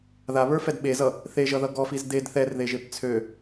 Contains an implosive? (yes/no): yes